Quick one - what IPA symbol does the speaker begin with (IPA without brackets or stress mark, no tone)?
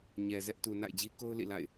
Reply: ɲ